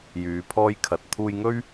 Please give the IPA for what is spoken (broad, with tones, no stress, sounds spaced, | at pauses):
j yː˨˧ pʰ ɔː˥ j kʰ ɐ˨˥ t̚ t̪ʰ uː˧ j ŋ ɵ˥ ɥ